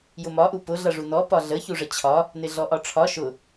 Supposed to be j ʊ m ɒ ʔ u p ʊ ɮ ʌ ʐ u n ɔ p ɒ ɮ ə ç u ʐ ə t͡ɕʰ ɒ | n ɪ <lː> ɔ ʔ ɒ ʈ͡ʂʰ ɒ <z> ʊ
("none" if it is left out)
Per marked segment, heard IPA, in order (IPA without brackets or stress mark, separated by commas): ɮ, ʃ